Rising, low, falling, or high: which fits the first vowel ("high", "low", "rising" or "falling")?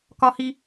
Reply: high